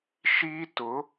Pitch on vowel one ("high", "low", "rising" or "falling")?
high